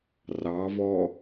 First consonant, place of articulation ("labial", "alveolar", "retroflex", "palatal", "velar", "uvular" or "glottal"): alveolar